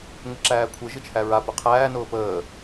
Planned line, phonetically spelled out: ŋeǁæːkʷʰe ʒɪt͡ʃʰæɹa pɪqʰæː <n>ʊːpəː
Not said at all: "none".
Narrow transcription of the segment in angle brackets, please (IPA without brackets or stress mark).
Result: n